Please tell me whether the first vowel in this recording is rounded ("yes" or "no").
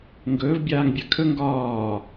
yes